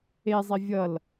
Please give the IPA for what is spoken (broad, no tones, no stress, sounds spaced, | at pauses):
e zˤ i vʲ ʌ l